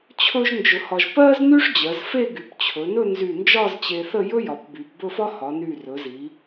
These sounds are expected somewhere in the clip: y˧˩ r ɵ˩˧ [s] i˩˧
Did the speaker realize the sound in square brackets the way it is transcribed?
no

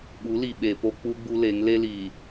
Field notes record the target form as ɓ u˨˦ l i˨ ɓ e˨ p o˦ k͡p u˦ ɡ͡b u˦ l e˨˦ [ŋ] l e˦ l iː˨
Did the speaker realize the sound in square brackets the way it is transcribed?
yes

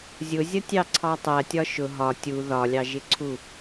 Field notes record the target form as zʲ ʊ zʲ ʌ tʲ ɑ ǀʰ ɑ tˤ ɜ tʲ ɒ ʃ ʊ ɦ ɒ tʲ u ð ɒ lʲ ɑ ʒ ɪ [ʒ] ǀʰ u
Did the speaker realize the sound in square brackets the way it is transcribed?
no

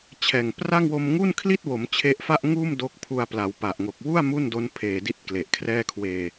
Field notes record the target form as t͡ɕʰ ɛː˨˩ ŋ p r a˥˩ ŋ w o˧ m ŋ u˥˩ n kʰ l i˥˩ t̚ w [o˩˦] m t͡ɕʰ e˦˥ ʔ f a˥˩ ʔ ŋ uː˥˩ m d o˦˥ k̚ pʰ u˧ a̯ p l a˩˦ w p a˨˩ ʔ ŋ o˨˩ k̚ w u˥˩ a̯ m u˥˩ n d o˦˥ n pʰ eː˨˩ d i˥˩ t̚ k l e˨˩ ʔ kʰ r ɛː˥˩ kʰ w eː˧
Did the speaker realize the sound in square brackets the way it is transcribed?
yes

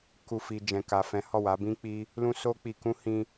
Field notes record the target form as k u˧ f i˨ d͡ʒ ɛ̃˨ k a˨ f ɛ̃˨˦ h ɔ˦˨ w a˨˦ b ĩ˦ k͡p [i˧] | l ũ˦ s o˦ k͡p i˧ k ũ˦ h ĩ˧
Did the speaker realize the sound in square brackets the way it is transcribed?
no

